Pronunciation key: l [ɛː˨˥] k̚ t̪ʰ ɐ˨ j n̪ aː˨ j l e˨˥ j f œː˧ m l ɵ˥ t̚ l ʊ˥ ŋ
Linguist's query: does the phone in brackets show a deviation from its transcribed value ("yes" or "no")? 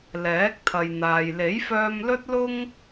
no